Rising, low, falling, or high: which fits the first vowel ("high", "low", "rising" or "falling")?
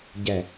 low